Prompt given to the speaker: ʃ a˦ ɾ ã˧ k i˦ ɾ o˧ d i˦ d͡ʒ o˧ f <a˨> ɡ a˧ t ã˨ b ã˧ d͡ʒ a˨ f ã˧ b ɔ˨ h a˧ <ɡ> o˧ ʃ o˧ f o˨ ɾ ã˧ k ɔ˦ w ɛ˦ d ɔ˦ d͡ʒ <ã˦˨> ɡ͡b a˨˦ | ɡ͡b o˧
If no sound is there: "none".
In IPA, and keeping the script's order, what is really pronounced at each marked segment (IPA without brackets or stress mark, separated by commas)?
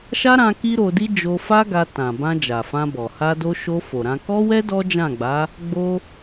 a˦, d, ã˦˨